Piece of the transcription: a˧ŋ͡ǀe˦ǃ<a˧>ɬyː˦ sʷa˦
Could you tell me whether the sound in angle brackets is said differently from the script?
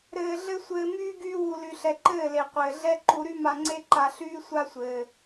no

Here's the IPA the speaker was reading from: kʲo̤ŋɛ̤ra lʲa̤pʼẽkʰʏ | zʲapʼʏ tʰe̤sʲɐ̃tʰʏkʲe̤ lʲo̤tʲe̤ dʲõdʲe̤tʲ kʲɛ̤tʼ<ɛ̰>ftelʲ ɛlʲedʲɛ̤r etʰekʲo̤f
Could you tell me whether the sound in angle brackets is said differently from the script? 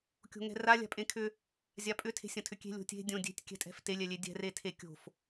yes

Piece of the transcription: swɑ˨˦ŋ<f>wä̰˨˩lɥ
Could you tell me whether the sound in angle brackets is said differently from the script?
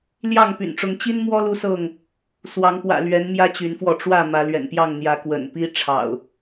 yes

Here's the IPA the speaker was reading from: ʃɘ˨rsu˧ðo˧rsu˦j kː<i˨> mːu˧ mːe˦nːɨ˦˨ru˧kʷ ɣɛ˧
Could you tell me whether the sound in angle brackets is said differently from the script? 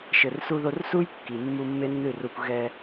no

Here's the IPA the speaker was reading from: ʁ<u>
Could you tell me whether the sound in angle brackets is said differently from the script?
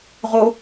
yes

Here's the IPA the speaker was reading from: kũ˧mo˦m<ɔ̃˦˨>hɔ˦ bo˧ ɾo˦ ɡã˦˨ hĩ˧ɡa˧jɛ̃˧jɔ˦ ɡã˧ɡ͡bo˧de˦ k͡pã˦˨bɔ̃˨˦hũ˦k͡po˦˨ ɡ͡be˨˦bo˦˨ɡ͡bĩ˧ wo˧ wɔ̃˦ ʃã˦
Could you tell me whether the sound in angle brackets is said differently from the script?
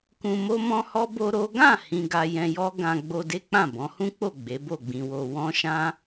yes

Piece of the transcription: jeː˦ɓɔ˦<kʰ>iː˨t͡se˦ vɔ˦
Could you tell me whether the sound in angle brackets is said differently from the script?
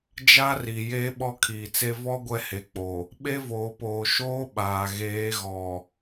no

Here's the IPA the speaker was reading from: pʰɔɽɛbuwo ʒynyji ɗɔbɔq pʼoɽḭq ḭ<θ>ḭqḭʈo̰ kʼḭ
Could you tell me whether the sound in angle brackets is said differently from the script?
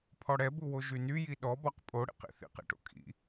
no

